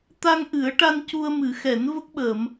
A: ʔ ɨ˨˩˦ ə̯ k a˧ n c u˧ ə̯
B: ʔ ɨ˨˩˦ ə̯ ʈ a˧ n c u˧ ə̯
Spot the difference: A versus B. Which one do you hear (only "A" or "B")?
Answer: B